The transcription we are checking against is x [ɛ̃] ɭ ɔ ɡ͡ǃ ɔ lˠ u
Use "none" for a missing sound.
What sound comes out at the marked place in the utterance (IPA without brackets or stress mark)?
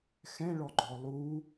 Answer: ɛ̃